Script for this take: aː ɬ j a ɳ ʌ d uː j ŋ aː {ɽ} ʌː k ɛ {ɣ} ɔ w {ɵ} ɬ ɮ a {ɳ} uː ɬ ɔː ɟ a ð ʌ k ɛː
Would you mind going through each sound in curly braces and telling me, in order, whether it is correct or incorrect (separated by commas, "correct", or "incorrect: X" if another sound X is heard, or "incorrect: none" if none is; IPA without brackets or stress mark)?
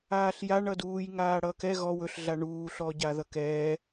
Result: correct, correct, correct, correct